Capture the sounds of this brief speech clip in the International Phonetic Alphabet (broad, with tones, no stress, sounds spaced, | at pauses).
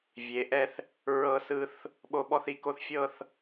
vʲ e˩˧ ʔ ɛ˧ θ | ɹ ɤ˧ s ɯ˧ θ | ɓ o˧ ɓ ɔ˥˧ θ i˩˧ k o˥˧ θ fʲ ɤ˥˧ θ